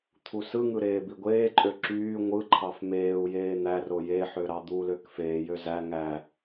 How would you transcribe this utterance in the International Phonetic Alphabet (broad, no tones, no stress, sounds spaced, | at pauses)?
t̪ʰ u s ɯ ŋ ɯ ɾ eː b i ɡʷ eː ǃʼ ø ǁ yː ŋʷ ɯ ǃʰ ɑ f m eː u̯ j eː n̪ æ r o j e ħ ø ɾ ɑ d̪ u l ø k f eː j ø z æ ŋ æ